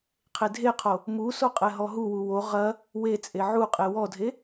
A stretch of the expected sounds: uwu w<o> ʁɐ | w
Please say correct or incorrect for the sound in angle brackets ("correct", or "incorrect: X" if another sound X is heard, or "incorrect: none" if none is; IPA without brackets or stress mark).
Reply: correct